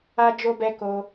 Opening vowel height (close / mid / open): open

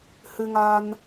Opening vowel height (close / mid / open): close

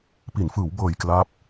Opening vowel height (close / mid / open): close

